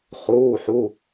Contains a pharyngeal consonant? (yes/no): yes